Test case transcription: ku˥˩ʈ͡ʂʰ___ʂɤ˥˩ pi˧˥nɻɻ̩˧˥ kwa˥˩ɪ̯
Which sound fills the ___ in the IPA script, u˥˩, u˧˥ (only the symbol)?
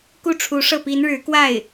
u˧˥